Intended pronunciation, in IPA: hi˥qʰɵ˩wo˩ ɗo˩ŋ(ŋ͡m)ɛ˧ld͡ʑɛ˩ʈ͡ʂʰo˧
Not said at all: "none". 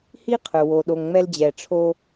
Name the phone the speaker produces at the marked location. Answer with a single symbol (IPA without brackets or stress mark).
ŋ͡m